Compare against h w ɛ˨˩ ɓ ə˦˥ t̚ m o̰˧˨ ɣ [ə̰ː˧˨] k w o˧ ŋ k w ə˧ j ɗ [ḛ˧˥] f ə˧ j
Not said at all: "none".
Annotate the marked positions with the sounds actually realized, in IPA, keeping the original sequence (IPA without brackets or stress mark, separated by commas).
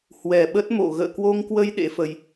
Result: ə̰ː˧˨, ḛ˧˥